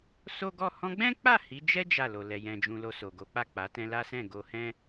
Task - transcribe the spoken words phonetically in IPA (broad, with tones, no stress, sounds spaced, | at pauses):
s o˦ ɡ ɔ˦˨ h ɔ̃˧ ɡ͡b ɛ̃˦ k͡p a˦˨ h i˨˦ d͡ʒ ɛ˦ d͡ʒ a˦˨ l o˨ l ɛ˨ j ɛ̃˨ d͡ʒ ũ˨ l o˧ s o˨ ɡ o˨˦ k͡p a˦˨ k͡p a˨˦ t ɛ̃˧ l a˦ s ɛ̃˦˨ ɡ o˧ h ɛ̃˦